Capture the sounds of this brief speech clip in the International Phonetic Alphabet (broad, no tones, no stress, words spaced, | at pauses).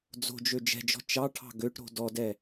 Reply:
d͡zo̤d͡ʒø d͡ʒɛ̤d͡ʒɔ̤ t͡ʃɑʈʰɑ̤ ɡøʈɾo̤ dɔdɛ